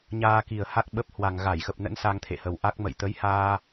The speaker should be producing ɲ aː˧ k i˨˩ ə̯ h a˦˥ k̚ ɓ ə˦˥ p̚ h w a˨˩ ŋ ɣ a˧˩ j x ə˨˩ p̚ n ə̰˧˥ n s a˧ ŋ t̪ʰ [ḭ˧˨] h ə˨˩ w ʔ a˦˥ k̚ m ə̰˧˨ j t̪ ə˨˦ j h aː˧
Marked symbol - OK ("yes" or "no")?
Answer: no